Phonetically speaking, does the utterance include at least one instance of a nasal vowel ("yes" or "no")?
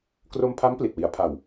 no